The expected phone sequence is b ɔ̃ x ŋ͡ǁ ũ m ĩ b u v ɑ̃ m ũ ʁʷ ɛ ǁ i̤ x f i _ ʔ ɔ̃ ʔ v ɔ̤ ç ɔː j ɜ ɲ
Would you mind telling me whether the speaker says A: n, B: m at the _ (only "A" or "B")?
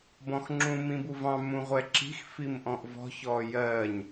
B